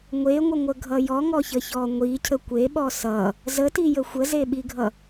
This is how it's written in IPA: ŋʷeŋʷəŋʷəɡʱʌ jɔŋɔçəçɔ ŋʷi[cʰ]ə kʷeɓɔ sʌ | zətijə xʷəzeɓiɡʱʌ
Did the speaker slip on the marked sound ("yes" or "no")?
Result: no